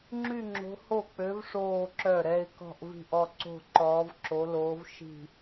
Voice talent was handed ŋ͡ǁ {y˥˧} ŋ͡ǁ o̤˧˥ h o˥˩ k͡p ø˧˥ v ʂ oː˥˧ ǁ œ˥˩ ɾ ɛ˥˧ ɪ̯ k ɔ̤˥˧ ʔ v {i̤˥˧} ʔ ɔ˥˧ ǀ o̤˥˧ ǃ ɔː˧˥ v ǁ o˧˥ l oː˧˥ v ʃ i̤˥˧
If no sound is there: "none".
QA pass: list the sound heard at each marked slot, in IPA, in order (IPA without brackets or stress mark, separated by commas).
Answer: y˥˧, i̤˥˧